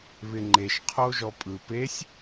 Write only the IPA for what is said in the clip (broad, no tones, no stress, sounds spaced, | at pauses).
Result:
β ɪ ŋ͡ǃ e ʃ qʰ o ʒ ɔ pʼ ɯ p e sʲ